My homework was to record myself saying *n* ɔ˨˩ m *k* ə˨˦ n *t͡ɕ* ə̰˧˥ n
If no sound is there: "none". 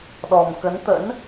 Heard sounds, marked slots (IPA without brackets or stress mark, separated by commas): ɗ, k, t̪